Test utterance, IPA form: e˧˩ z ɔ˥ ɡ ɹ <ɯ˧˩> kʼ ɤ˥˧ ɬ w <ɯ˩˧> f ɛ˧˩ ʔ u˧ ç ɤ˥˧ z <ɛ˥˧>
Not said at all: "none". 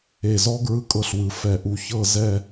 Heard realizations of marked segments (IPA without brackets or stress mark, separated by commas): ɯ˥˧, ɯ˩˧, ɛ˥˧